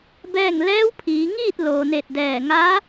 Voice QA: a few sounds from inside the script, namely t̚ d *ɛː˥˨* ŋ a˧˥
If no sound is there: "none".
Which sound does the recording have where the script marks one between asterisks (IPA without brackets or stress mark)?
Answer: ɛː˧˩